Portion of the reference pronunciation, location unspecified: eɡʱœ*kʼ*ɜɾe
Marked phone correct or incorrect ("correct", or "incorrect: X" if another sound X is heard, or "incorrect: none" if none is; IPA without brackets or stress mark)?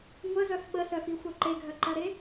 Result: incorrect: ǃ